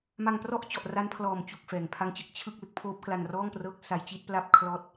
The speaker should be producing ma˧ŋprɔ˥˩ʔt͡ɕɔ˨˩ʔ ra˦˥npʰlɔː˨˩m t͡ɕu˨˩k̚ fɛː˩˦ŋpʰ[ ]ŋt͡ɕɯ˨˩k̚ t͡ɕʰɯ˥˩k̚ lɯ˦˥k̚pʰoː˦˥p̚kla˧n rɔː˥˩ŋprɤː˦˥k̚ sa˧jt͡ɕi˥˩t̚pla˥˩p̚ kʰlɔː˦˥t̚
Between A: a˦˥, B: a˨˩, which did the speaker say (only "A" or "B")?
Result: A